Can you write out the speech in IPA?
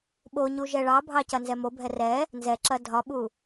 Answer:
ɓ o ɲ u ʒ ɛ ɭ ɑ bʱ ɑ c ɐ n z ɛ m o bʱ ɛ r ɛ | n z ɛ ǁ ɐ dʱ ɒ ɓ u

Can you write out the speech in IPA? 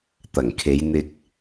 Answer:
t̪ ɐ˨˩ ŋ kʰ e˨˧ j n̪ ɪ˧ k̚

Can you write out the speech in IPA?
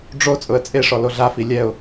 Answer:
ɖ͡ʐ o t͡sʼ ʊ ə̯ t͡sʼ e ʂ ɔ l o ɮ a f i lʲ ɛ ʊ̯

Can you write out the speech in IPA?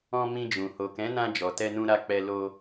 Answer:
ɔ̃˧ m ĩ˧ d͡ʒ ũ˨ h o˨ k ɛ̃˨˦ n ã˧ d͡ʒ ɔ˨ t ɛ˧ n ũ˧ ɾ a˧ k͡p ɛ˧ l o˧

